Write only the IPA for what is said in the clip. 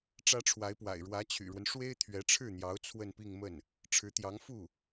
ʈ͡ʂä˥ʈ͡ʂʰwa˧˥ɪ̯pwa̰˨˩ɪ̯ ɻwä˧˥t͡ɕʰy̰˨˩ɻwə˦n ʂwe˥ɪ̯t̪ʰɥɛ˧˥ʈ͡ʂʰɻ̩˥˩n̪jɑ˧˥ʊ̯ t͡sʰwə˥˧npi˥˧ŋmə˥˩n | ʈ͡ʂʰɻ̩˧˥t̪jɑ˧˥ŋ fu˥˩

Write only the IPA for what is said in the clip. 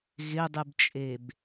ɣɪdˤɨbt͡ʃʼeb

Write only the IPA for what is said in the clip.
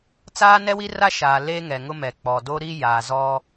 t͡saː˦nɛ˦wi˦ra˦ ʃaː˨ le˦ŋɛ˨ŋʊ˦mɛ˨ k͡pɔ˨do˦ɾi˦ jaː˨zɔ˦

